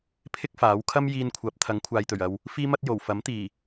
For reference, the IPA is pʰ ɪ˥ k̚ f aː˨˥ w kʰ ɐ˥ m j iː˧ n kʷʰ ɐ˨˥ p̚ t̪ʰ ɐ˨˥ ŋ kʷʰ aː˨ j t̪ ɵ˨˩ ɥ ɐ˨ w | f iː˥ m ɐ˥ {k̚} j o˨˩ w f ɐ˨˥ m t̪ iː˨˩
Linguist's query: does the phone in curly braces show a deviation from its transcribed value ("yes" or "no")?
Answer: yes